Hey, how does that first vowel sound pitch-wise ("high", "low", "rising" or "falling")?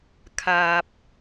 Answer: low